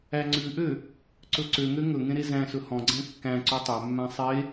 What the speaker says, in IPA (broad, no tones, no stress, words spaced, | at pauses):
æŋ͡ǀʉʔø | ǀɵǀøŋø ŋɵŋẽ ɾezæ̃sɵ hɔ̃ɡ͡ǀæ̃ kːæ̃ ǀʉtˤømːæ̃ sˤe